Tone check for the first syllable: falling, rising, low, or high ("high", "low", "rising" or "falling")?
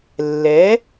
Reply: rising